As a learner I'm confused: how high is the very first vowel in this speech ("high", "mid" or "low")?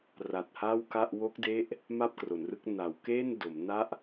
low